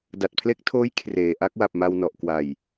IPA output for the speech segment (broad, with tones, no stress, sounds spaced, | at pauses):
d a˨˩ t̚ pʰ l e˦˥ k̚ tʰ oː˦˥ j kʰ r eː˨˩ ʔ a˥˩ k̚ w a˨˩ p̚ m a˧ w n ɔ˨˩ ʔ k w a˨˩ j